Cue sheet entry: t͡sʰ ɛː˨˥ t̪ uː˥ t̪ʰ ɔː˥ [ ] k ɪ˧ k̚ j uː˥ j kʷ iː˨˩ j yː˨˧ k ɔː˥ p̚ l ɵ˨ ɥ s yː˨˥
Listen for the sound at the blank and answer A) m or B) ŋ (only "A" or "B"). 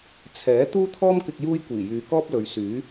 A